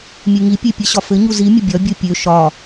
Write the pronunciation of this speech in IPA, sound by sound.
mʲeŋipʲe pʲɘɕɒfɘɲu zimʲə bʲɒbʲo pʲø ʃɒ

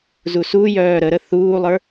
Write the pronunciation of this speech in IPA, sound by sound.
zusujœː ɾəɾə θuːlˠə˞

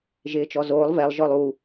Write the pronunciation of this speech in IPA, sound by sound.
ʒɪːt͡ʃɔzoːlˠ vɛlˠ ʒɔlˠu

